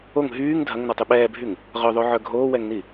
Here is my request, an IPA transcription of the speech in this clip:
o ŋ ɦ yː ŋ dʱ ɐ ŋ n ɔ tˤ y ɓ ɛː bʱ y ŋ | ʁ œ ðˤ o ʕ œ ɡʱ oː w ɛ ŋ n i

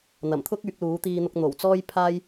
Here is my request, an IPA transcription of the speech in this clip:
n̪ ɐ˨˩ m t̪ʰ ʊ˥ k̚ yː˨˥ k̚ l uː˨˥ t̪ iː˧ n̪ ʊ˧ k̚ n̪ o˨˩ w t͡s ɔː˥ j pʰ aː˥ j

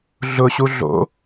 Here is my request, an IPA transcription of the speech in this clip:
ɮ ʊ ɕ u ɮ o̰

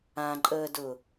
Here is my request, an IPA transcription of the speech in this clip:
ã ǃʼ əː d ʊ

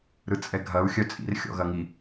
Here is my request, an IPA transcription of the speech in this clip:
ɾ ɯ t͡sʼ ɛ ɡʱ ɐ u̯ xʲ œ t͡sʼ ḭ r xʲ ɔ̰ ɣ ɐ ŋ i

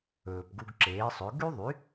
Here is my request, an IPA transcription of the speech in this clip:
ɵː˩ p ɡ u˧ ɡ ǁ eː˩˥ sˤ ɵ˩˥ ɡ y˥ ðˤ y˩˥

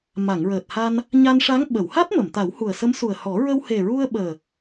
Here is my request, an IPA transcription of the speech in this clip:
m a˨˩˨ ŋ ɹ əː˨˩ t̚ h a˧ n | ɲ a˧ n ʂ a˧˥ ŋ ɓ ə˨˩˨ w h a˦˥ t̚ m ə˨˩˨ m t̪ a˨˩˦ w h u˨˩ ə̯ s ə˧˥ m s u˨˩ ə̯ h ɔ˨˩˦ ɹ ə˧ w h e˨˩ ɹ u˧ ə̯ ɓ əː˨˩

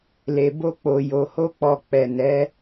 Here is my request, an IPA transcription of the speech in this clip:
l e˨ b o˧ k͡p o˨ j o˨ h o˧ k͡p ɔ˨ k͡p ɛ˨ n ɛ˨˦

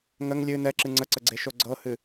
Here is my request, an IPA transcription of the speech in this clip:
ŋ ə ŋ lʲ ɨ n ɛ ǁ ɨ ŋ͡ǀ ə ǀ ə ɡ͡ǀ e ʃ o ɡ͡ǀ ɤ h ɨ

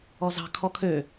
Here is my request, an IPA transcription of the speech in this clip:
ɔ z ɑ̤ kʰ ɔ kʰ ø

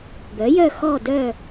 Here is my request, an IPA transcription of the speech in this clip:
b œ˩˥ j œ˥˨ x ɔ˥˨ d œ˥˨

